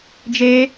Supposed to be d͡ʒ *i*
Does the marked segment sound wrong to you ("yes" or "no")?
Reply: yes